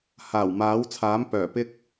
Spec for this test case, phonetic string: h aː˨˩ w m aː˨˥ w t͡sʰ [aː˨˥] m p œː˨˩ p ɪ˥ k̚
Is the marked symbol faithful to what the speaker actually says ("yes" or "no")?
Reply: yes